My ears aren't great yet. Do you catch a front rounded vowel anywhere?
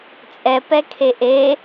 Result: no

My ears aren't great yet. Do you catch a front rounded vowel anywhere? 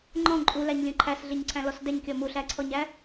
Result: no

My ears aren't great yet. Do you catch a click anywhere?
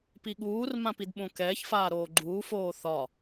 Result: yes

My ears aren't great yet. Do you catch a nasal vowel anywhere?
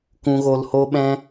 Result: yes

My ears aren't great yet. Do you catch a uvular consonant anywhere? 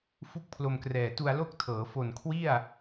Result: no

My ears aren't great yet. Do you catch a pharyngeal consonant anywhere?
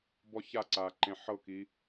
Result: yes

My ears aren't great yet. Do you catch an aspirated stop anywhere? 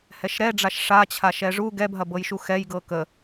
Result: yes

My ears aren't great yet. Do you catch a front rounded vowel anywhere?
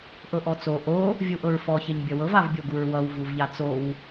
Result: no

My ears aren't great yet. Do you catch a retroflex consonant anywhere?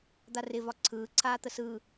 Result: no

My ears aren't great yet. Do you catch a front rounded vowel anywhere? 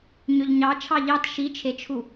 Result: yes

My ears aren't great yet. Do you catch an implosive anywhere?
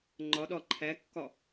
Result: yes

